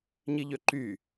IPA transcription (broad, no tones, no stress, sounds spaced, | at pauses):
ɲ i ʎ ø ǃ y